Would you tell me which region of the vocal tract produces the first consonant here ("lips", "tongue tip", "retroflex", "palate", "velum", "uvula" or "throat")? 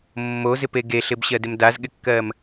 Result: lips